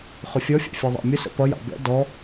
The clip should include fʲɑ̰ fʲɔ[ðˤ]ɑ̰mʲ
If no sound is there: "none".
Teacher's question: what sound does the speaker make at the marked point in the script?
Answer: ðˤ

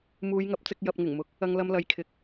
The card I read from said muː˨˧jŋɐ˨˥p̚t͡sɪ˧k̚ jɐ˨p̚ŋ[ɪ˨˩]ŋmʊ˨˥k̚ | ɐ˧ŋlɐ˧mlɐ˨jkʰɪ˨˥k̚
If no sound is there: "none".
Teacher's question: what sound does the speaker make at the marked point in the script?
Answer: ɪ˨˩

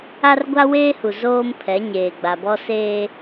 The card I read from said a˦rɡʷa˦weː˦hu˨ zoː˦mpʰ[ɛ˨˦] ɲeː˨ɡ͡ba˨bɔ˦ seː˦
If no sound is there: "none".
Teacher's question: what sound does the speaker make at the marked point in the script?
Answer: ɛ˨˦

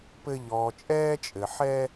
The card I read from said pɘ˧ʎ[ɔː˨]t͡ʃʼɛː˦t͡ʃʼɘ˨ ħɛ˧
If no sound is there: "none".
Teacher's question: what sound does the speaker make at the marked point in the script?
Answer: ɔː˨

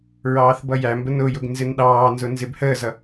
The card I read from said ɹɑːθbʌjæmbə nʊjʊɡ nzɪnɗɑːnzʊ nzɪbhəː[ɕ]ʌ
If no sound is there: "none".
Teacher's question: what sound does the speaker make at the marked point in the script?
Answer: z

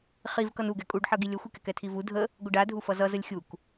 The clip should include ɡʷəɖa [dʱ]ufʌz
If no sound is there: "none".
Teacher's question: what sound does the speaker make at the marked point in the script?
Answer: dʱ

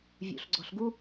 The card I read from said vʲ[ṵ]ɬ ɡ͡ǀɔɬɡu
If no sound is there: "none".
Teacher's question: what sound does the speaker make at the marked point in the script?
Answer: ṵ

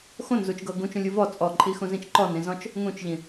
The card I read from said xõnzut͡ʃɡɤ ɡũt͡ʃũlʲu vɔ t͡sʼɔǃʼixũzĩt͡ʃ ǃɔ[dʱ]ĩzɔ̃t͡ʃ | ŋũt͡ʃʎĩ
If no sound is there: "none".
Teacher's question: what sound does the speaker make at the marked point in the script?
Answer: n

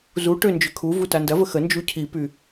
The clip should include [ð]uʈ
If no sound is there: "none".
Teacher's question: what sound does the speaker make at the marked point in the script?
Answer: z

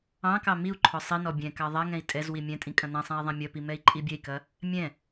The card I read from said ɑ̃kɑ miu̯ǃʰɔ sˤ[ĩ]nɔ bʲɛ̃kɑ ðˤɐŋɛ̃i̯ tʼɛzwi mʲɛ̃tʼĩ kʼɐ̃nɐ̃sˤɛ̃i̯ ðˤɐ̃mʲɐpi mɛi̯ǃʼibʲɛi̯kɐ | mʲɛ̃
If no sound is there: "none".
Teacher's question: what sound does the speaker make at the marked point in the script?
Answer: i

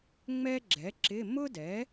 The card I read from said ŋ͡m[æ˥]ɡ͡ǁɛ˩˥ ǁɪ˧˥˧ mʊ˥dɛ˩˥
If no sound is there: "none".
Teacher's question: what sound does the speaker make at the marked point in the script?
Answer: ɛ˥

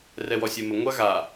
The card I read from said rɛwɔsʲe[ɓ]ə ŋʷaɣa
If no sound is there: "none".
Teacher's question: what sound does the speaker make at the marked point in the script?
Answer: m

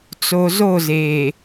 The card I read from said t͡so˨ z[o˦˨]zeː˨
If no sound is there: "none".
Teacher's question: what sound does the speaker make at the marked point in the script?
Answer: o˦˨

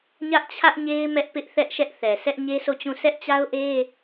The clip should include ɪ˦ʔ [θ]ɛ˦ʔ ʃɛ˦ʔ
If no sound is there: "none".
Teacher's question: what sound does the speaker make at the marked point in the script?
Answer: θ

